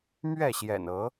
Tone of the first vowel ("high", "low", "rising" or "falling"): falling